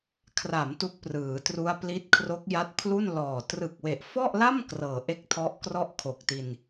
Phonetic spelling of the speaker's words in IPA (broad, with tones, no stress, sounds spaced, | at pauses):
kʰ r a˩˦ m t u˦˥ k̚ p r ɯː˩˦ t r u˦˥ a̯ p l i˦˥ t̚ kʰ r o˦˥ k̚ j a˦˥ t̚ pʰ l u˥˩ n l ɔː˨˩ t r ɯ˨˩ k̚ w e˨˩ ʔ f ɔ˥˩ ʔ l a˥˩ m k r ɤː˨˩ ʔ e˥˩ k̚ tʰ ɔ˦˥ ʔ k r ɔ˥˩ ʔ kʰ o˨˩ k̚ t i˧ n